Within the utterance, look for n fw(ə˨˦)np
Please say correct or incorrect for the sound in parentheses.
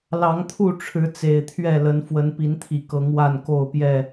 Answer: correct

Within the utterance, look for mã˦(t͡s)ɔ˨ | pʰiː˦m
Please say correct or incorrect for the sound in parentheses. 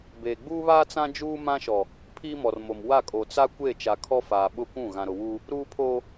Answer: incorrect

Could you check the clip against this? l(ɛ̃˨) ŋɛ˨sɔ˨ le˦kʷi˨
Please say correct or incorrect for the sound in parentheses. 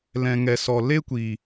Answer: correct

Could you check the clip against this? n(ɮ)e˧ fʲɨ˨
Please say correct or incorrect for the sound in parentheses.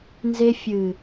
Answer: incorrect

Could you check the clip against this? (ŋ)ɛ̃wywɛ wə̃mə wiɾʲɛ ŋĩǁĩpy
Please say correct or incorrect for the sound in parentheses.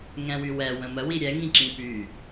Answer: correct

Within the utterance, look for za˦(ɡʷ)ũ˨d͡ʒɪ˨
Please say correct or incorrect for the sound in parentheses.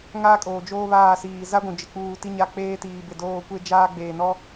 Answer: correct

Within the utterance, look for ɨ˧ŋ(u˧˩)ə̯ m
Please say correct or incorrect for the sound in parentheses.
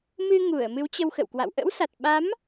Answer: correct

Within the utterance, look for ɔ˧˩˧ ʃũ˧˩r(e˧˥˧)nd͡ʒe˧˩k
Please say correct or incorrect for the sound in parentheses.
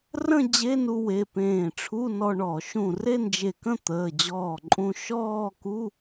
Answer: incorrect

